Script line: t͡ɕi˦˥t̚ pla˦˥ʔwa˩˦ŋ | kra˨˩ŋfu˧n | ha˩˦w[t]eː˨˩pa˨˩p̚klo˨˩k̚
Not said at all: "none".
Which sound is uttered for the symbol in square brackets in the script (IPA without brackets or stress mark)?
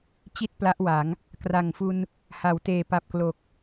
t